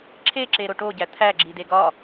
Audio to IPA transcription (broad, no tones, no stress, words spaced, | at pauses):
ǁʰeǁeɾo ʈoɟæ t̪ʰæɡ͡ǁide ɡɒ